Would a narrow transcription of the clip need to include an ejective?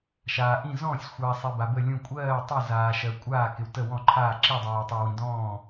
yes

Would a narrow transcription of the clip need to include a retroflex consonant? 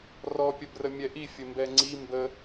no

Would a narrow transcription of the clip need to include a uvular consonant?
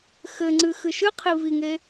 yes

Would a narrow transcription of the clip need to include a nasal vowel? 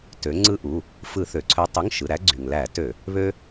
no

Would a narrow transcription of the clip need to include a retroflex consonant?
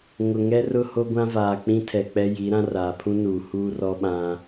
no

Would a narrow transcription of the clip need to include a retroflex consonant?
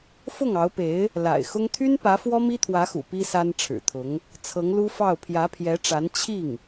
yes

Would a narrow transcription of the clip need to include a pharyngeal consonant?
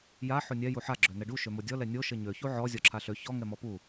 yes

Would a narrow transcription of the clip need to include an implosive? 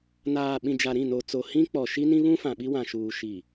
yes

